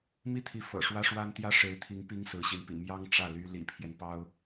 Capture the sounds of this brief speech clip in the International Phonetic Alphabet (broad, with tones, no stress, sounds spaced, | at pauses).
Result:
m i˥˩ t̪ʰ i˧˥ f ɤ̰˨˩ ʂ w ä˥ ʂ w a˥ n t̪ j ä˥ ʂ e˧˥ ɪ̯ t̪ʰ i˧˥ ŋ p i˥ ŋ s ɹ̩˧˥ ɕ i˧˥ n p ḭ˨˩ m j ɑ˥ ŋ ʈ͡ʂ ä˥˩ l y˥ l ḭ˨˩ pʰ j ɛ˦ n p ɑ˥ ʊ̯